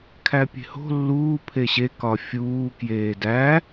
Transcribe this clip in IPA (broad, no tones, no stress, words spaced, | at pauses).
kʰæpʲe̤ho̤ lːuː pʰeɕe kɒfʲuː kjeːdæ